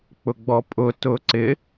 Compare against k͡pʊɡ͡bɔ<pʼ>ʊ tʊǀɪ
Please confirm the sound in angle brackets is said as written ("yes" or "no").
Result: yes